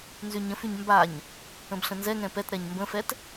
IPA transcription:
n z y ɲ ə̃ f y ɲ m b a ɲ | ə̃ b ɬ ə̃ n z ɛ ŋ ɛ̃ p ɛ t ɾ ɛ ɲ m b ə̃ f ɛ t

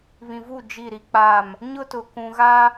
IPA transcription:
β ĩ˨ v u˦˨ d͡ʒ i˦˨ ɾ i˦ k͡p a˦˨ m | ɲ ʊ˦ t ʊ˨ k ũ˨ ɣ a˦

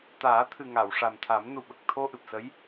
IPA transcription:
t̪ aː˨˩˦ t̪ʰ ɨ˨˩ ŋ a˨˩˨ w ʂ a˨˩ m t̪ʰ a˨˩˦ m n u˨˩ ɓ ə˨˩ k̚ t̪ʰ o˧ ʔ ɨ˨˩ p̚ s ə˧˥ j

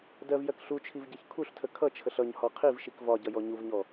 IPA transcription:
d ɜ v j ɜ k ɬ u t͡ʃʰ i v ɟ ʌ ç kʰ u ɬ tʰ ə kʰ ʌ t͡ʃʰ ə ɬ ʌ ɲ h ɔ qʰ i v ʃ i k v ɒ ɟ ʌ j ɔ ɲ u v ɲ ɔ

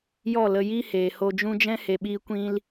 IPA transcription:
j ɔ˦˨ l ə˧ j i˦ h eː˨ h o˧ d͡ʒ ũ˦ d͡ʒ ɛ̃˦ h e˨ ɓ iː˧ kʷ ĩ˧ l

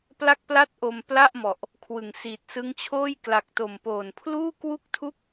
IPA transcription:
p l a˥˩ k̚ p l a˥˩ t̚ ʔ o˧ m p l a˥˩ ʔ m ɔ˨˩ ʔ | kʰ w ɯ˩˦ ŋ s iː˨˩ t̚ s ɯ˦˥ ŋ t͡ɕʰ oː˥˩ j k l a˨˩ k̚ t o˨˩ m p oː˨˩ n pʰ l uː˥˩ k w u˥˩ k̚ tʰ u˥˩ k̚

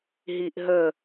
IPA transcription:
ɦ i ʔ ɦ ə

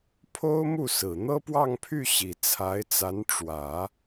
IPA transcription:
pʰ o˥ ʊ̯ m u˥˩ s ɹ̩˨˩ n̪ ɤ˥ p w ɑ˥˧ ŋ pʰ y˥˩ ɕ i˨˩ t͡sʰ a˧˥ ɪ̯ t͡s a˧˥ n ʈ͡ʂ w ä˨˩˦

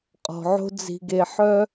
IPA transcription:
qʼ ɔ̤˩ ʕ o̤˥ d͡z i̤˨ ɡ e˨ ħ œ˥

